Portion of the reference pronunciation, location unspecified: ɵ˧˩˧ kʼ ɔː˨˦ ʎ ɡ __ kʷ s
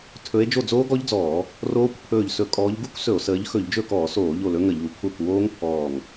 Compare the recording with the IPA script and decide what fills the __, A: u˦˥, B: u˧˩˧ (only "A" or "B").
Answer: A